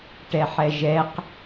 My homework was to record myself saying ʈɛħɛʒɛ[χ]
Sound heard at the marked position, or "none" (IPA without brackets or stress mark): q